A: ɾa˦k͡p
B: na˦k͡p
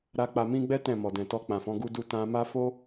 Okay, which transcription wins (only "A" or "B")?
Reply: A